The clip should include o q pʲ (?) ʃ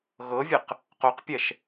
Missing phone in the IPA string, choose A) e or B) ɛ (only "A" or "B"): B